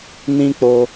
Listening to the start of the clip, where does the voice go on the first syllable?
high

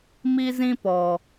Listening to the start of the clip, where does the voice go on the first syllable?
high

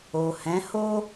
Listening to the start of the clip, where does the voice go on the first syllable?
low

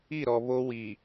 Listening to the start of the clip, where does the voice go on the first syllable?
falling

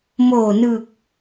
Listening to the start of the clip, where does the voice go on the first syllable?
low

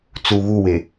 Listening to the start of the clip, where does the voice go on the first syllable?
low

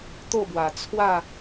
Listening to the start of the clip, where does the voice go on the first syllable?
falling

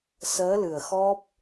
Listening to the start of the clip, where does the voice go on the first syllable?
rising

